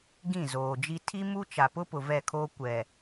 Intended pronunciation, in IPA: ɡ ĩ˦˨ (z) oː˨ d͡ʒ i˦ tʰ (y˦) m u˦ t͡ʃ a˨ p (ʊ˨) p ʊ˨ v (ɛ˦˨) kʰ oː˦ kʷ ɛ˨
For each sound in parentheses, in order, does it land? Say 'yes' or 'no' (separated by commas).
yes, no, no, yes